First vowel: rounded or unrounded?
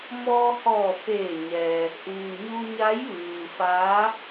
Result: rounded